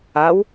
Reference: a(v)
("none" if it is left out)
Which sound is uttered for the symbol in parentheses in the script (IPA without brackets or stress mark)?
w